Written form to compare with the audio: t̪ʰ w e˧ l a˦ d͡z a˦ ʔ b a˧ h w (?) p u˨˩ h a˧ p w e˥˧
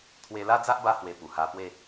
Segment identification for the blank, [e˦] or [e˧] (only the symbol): e˧